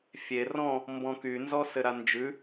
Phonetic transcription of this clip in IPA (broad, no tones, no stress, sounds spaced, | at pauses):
fʲ e r ɔ̃ | m b ɔ̃ k y n z ɔ s ɘ ɾ a n d͡ʒ ʉ